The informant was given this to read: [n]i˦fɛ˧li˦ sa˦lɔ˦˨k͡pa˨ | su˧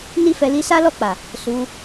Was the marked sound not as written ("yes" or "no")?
no